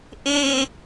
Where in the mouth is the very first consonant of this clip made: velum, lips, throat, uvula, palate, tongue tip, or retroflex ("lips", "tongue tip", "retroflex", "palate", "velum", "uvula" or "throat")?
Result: throat